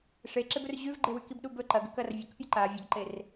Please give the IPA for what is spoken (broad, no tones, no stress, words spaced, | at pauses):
ʂeǁebɵr ʑʉvɡ͡ǃewʉkib ɗubɵ ǃɐɡ ɵkɐr vʲɐkpʲɨǃa vʲɐɡǃer